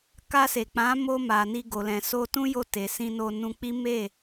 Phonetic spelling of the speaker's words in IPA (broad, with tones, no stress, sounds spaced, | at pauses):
k a˧ s e˨ k͡p ã˨˦ m o˧ m a˨ n i˧ ɡ o˨ l ɛ̃˨ s o˧ t ũ˦ j o˧ t e˨ s ĩ˧ n o˧ n ũ˧ k͡p i˦ m e˦˨